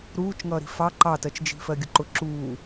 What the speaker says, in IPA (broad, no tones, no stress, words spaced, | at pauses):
ɾuːt͡ʃŋʌːɾi̤ fɑ ǃɑtɜt͡ʃd͡ʒi̤ fɜɡʲʊǃʊ ǁuː